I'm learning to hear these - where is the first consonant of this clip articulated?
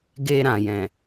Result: velum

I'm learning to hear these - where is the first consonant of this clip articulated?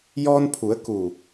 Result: palate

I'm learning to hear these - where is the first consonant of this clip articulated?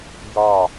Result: palate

